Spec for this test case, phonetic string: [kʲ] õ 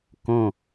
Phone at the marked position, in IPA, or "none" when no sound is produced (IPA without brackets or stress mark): k